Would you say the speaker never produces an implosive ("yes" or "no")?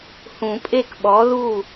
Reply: no